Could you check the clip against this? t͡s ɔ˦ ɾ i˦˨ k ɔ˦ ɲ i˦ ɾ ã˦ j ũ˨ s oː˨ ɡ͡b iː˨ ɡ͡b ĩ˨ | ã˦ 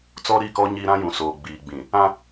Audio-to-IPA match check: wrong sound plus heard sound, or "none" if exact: none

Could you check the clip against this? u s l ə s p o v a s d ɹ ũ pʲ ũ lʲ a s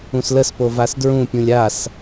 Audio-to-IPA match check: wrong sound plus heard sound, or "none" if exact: u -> ũ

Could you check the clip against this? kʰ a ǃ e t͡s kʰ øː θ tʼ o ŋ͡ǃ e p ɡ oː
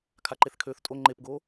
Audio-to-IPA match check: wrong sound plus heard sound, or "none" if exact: t͡s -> θ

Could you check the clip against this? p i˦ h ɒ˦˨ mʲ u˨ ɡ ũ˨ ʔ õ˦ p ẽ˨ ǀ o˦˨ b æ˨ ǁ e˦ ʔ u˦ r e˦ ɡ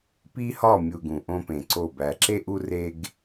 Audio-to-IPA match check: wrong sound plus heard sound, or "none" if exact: none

